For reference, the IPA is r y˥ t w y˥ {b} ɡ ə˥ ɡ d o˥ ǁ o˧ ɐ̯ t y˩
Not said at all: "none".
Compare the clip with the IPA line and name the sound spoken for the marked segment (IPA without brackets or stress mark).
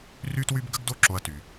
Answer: b